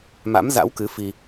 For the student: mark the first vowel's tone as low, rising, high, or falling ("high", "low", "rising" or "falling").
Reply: rising